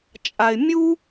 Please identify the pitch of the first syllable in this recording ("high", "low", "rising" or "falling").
low